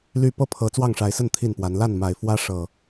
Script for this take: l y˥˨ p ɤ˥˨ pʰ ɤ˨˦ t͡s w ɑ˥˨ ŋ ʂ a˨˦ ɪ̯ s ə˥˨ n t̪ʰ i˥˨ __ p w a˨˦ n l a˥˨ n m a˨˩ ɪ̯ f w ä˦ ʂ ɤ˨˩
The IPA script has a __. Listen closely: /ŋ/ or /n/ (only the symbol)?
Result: n